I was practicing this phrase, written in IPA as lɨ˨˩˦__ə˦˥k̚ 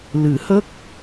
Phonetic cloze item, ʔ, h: h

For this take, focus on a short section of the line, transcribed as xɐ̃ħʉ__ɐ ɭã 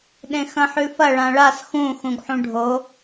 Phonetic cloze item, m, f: f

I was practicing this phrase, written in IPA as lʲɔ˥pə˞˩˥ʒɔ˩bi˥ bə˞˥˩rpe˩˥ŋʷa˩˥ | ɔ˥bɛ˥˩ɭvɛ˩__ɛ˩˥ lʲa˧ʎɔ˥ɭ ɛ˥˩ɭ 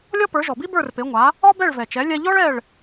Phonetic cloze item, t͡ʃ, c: t͡ʃ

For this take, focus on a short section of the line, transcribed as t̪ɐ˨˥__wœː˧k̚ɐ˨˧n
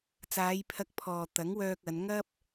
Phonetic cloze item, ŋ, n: ŋ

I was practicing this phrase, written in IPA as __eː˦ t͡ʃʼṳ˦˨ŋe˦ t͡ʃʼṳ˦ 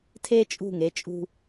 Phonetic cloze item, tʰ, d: tʰ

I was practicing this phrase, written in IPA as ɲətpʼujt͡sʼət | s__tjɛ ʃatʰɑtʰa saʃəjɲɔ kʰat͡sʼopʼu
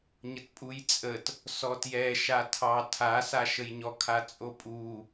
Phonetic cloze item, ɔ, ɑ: ɔ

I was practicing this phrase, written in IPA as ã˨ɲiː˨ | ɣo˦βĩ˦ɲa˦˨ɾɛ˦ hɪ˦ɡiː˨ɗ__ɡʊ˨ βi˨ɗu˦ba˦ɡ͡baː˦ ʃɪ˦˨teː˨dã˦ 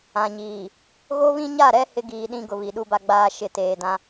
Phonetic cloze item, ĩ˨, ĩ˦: ĩ˦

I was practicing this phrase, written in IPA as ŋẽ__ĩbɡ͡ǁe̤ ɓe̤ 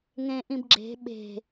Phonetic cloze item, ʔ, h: ʔ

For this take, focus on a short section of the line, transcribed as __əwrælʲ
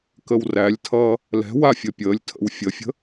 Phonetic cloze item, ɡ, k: k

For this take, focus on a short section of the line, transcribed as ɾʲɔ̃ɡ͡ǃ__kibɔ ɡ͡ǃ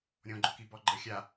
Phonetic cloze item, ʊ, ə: ʊ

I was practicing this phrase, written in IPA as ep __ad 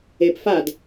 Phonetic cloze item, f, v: f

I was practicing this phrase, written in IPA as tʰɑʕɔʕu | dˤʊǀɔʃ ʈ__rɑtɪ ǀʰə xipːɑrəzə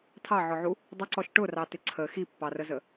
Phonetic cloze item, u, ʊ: ʊ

